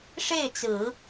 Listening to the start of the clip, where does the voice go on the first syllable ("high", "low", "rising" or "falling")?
falling